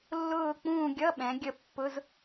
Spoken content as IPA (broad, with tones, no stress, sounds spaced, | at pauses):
lː ʊː˦˨ k͡p ũː˦˨ ɡʲ ʌ˧˥˧ ɓ ɛ̃˩˧ ɡʲ ə˦˨ pː ʊ˧˥˧ z